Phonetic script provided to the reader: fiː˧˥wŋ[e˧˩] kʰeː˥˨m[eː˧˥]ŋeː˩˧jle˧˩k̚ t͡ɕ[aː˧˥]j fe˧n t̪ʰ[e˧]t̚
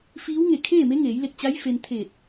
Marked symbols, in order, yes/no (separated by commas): yes, no, no, no